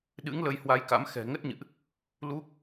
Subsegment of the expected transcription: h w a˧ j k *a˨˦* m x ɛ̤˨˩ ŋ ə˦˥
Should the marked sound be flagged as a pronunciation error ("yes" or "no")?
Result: yes